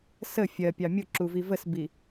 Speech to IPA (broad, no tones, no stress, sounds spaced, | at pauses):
s ə fʲ ɜ pʲ ɑ mʲ ʊ ǁ u v i v ə s b i